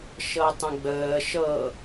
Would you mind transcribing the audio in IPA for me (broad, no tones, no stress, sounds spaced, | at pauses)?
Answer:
ʃ ɤ tˤ ə̃ ɡ͡b əː ʃ ɤ